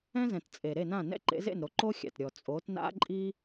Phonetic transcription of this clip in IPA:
ɛ̃˥zɛ̃˨tt͡sʼe˨ ɾe˥˨nã˥˨ nɛ̰˥˨ǃḛ˨˥zḛ˥˨nɾo˨˥ ǃo˥xʲa̰˨t ɾʲɔ˨t͡sʼo˨˥t na̰˥ǃʼi˥

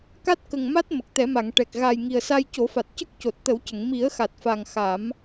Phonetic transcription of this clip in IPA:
ka˦˥t̚kə˨˩ŋma˦˥t̚ mə˨˩k̚t̪ɛ˨˩˦ma˨˩˨ŋ ʈɛ˨˩k̚ ɣa˨˩j ŋi˨˩ə̯sa˧jco˨˩˦fa˨˩t̚ cə˦˥k̚co˨˩t̚t̪ə˨˩˦wcə˨˩˨ŋ mi˨˩˦ə̯xa˨˩t̚fa˨˩ŋ xa˨˩˦m

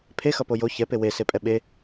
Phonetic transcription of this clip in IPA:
pʰexʌpo jo çɛpe wesepʼɛ ɓe

